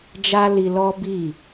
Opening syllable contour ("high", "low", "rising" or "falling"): high